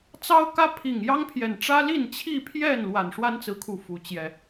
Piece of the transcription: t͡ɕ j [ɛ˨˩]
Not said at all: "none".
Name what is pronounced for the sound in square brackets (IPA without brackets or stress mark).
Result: ɛ˨˩